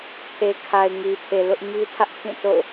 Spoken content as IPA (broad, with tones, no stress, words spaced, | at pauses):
pʰe˨kʰa˨ɪ̯ ŋi˨pʰe˨lʊ˦ʔɲi˦ tʰä˦ʔpʰĩ˦˨to̰˦˨ʊ̯